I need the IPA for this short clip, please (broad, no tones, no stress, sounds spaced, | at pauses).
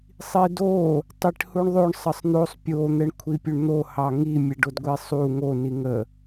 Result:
sˤ i d o | tˤ i ʈ h u ɳ ðˤ o ɳ sˤ ə sˤ n̪ o sˤ pʲ o n̪ ɛ ɳ kʷʰ i pʲ u ɳ n̪ o h ɑ ŋ i mʲ ɛ ɖ o d ɡʷ i sˤ u ŋ o n i ŋ ə